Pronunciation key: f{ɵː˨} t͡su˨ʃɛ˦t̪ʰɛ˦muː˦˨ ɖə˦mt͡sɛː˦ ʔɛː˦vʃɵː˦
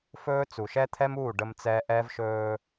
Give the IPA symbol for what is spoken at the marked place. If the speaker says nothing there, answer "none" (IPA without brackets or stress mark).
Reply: ɵː˦